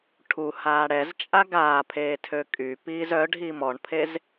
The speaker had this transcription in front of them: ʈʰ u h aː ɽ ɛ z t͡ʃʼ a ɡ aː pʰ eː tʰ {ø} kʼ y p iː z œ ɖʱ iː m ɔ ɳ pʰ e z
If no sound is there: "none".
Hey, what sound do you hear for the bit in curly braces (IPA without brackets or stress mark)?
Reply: ø